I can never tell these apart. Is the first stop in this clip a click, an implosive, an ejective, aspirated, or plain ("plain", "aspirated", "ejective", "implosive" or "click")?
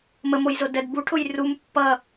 plain